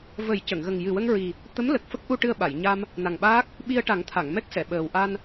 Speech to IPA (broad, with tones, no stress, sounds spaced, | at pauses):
v ə˨˩˦ j c ə˨˩˨ ŋ ɣ ə˨˩ ŋ j ɨ˨˩ w ə˧ ŋ ɹ i˨˩ | t̪ ə˧˥ m l ə˨˩ k̚ f ə˦˥ k̚ ʔ u˧ ʈ ɨ˧ ə̯ ɓ a˨˩˨ j ɲ a˧ m | n a˨˩ ŋ ɓ aː˦˥ k̚ | ɓ i˧ ə̯ ʈ a˨˩˦ ŋ t̪ʰ a˨˩˨ ŋ m ɛ˦˥ k̚ s ɛ˨˩˨ ɓ əː˨˩ w ʔ a˧ n